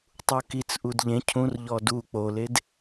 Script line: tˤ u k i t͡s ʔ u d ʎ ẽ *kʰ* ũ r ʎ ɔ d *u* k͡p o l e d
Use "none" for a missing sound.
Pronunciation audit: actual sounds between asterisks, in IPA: cʰ, u

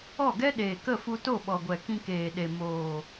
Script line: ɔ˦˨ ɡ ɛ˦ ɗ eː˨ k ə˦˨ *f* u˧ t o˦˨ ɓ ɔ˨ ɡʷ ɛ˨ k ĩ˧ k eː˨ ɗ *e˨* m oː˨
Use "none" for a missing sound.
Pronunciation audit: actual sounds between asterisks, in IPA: f, e˨

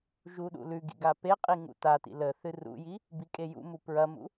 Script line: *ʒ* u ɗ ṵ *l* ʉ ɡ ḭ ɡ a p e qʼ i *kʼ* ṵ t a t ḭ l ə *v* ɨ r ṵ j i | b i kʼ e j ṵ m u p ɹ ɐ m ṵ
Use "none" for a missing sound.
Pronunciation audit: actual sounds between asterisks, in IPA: ʒ, l, ŋ, θ

